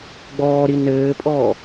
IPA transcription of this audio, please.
ɡ͡b ɔː ɾ i n ɘː pʼ ɔː

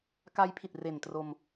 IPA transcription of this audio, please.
k a˦˥ j pʰ i˨˩ t̚ r e˨˩ n t r o˧ m

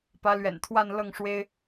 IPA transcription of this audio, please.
p ä˧˥ l ɥ ɛ̰˨˩ n t̪ʰ w a˥˧ n l ɤ˥˩ ŋ ʂ w e˥ ɪ̯

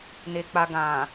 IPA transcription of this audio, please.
n e˨ k͡p a˨ ɡ ã˨

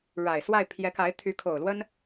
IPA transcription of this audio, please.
ɻ a˨˩ ɪ̯ s w a˥˩ ɪ̯ pʰ j ɛ˧˥ k a˧˥ ɪ̯ t̪ʰ y˧˥ kʰ o˨˩ ʊ̯ l w ə˥ n

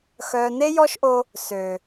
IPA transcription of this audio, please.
x œː˨ n e˦ j ɔ˦ ʃ ʔ o˧ | s ø˨

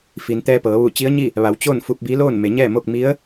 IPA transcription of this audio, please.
f i˩ n t̪ ɛː˧ p ɤː˩˧ ʋ u˧˩ t͡ɕ i˧˥ ə̯ ɲ i˥˨ | ʋ a˩˧ w t͡ɕ o˥˨ n f u˧ p̚ b i˧˥ l oː˥˨ n m e˩˧ ɲ ɛː˥˨ m o˥˨ k̚ m i˧˥ ə̯

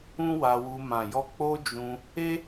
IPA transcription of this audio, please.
ũ˦ w a˧ w u˧ m ã˨ j ɔ˧ k͡p o˦ d͡ʒ ũ˧ | e˦

